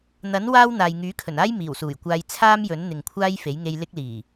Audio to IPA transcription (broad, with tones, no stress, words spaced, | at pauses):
n̪ɐ˨˥n waː˥w n̪aː˨jŋyː˨˥ kʰɵ˨˩naː˥j miː˨˩wsuː˨˩jkʷaː˧j t͡sʰaː˥mjɵ˨˥n n̪ɪ˨ŋkʷʰaː˥jfe˨˥jŋe˧j lɪ˥k̚liː˨˩